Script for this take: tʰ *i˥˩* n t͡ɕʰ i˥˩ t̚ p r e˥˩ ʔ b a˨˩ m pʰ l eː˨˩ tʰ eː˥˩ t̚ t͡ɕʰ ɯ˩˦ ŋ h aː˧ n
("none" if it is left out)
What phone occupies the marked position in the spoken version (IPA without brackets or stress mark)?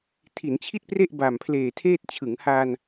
i˩˦